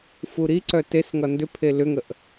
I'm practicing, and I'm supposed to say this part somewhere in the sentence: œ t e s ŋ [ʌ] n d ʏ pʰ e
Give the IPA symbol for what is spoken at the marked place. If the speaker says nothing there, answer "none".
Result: ʌ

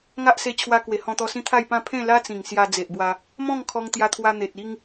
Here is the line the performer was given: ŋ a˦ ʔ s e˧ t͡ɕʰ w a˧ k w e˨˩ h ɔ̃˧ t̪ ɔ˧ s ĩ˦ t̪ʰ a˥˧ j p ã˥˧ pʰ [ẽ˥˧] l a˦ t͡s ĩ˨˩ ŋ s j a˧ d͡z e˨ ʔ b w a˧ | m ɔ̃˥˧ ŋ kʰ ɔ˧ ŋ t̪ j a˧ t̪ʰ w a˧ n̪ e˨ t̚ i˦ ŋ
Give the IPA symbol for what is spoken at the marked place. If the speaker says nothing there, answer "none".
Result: ẽ˥˧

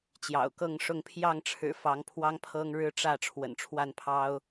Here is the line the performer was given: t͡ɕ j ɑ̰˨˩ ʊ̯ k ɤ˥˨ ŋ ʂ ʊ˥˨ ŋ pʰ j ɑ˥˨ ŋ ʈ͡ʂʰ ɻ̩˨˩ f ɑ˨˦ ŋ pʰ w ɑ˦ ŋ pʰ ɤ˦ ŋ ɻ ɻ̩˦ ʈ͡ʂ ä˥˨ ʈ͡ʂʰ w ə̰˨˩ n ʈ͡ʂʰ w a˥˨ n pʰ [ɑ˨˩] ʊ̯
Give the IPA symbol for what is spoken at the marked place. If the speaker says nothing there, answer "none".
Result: ɑ˦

